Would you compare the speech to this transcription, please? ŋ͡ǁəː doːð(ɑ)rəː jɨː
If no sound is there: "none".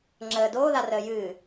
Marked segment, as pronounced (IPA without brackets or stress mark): a